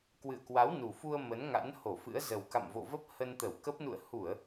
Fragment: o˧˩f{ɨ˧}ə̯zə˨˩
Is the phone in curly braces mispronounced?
yes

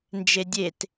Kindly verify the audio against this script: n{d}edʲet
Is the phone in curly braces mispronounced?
yes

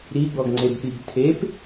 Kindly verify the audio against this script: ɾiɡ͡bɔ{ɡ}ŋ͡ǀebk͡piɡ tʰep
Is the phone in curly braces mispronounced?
no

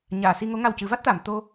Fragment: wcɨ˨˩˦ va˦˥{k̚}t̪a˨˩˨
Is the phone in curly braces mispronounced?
yes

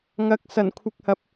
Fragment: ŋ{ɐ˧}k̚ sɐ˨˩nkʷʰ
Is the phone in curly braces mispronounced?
no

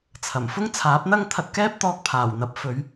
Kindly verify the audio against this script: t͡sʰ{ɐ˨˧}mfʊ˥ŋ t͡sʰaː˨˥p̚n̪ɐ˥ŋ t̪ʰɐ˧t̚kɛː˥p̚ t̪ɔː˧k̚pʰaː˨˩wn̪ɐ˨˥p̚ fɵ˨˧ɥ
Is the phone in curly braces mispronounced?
yes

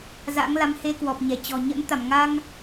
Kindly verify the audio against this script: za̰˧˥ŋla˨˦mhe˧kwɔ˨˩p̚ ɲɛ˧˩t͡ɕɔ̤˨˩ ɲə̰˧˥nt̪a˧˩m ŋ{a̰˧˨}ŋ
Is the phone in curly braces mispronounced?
yes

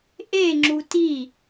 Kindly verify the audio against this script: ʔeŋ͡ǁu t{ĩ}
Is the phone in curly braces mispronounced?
yes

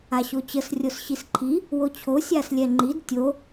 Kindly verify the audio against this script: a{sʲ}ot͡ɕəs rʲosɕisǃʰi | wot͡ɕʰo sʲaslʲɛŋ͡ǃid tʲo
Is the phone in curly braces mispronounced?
yes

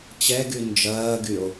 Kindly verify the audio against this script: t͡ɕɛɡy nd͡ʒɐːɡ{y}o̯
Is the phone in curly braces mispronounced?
no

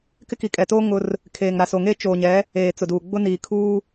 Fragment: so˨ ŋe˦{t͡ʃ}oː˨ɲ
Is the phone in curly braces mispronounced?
no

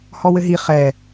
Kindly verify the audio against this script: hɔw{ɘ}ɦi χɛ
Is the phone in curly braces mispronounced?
no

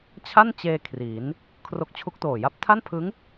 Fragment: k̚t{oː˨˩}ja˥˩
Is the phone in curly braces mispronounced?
no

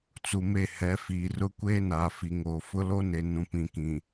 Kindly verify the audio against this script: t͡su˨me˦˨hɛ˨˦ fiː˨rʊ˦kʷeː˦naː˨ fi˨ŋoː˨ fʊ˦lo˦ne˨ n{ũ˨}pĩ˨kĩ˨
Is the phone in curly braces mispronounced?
no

